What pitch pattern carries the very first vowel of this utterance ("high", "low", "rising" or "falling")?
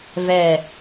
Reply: falling